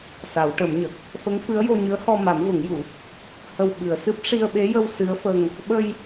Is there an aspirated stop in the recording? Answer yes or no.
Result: no